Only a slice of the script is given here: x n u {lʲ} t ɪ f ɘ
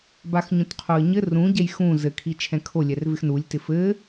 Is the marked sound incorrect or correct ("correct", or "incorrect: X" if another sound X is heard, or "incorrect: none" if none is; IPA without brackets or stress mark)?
correct